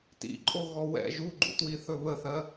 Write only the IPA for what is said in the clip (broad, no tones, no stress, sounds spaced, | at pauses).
t ḭ ǃʼ o ɣ ɔ w ɛ̰ ʒ u ɡ͡ǃ ṵ t w i θ ɵ β ə θ ɜ